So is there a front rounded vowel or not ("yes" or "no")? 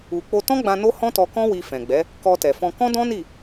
no